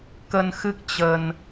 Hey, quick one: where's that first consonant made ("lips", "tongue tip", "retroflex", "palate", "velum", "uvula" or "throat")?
velum